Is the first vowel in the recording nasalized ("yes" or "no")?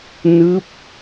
no